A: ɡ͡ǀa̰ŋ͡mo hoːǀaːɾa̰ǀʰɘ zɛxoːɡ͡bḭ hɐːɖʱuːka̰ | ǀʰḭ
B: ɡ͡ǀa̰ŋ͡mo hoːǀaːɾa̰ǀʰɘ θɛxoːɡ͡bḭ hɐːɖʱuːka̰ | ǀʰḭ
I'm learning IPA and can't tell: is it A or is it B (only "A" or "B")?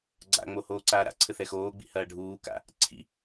B